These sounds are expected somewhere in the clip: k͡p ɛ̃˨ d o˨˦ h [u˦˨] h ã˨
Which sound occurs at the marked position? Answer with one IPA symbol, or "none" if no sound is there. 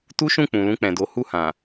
u˦˨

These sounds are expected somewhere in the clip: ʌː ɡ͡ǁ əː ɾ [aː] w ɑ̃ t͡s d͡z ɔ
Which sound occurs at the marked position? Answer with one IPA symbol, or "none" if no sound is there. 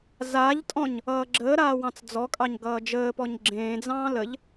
aː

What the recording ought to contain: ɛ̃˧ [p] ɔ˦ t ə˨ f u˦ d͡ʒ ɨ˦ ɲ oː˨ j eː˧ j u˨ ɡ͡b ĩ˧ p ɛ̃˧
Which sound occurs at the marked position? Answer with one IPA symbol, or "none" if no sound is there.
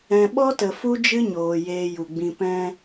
ɓ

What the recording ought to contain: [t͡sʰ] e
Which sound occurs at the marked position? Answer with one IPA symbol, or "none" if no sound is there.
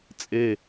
t͡sʼ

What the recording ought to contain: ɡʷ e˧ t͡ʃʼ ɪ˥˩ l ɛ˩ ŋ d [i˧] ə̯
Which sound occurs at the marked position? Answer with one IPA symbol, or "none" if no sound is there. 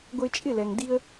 i˧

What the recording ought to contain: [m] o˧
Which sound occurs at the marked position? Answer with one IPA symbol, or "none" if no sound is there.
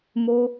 m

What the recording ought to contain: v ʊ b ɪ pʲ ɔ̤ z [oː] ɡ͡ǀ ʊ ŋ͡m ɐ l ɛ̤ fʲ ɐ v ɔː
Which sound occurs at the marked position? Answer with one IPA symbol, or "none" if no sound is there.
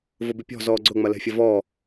ɔː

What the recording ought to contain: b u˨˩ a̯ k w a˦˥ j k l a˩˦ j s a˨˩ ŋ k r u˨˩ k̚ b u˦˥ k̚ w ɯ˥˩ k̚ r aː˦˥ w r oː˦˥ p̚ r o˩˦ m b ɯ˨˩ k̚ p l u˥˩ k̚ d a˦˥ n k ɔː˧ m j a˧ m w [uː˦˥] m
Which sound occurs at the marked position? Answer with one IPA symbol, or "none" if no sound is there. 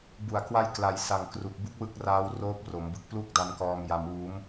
uː˦˥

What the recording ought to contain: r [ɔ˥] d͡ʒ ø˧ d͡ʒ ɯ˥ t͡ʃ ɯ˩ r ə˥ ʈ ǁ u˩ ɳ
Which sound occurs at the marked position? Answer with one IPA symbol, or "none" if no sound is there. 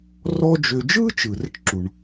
ɔ˥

